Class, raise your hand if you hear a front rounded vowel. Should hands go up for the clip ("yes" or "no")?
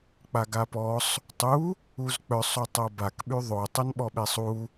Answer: yes